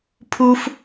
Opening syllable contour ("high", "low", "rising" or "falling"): high